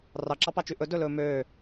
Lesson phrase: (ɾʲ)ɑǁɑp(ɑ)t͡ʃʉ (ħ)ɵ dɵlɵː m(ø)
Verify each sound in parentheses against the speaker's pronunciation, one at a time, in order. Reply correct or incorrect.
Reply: incorrect: r, correct, incorrect: ʔ, incorrect: øː

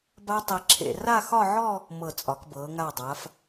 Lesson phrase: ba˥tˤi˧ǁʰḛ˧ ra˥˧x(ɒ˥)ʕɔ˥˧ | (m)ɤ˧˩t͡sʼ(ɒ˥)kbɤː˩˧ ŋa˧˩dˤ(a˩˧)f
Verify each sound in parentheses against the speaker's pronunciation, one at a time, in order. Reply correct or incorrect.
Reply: incorrect: ɒ˥˧, correct, incorrect: ɒ˩˧, correct

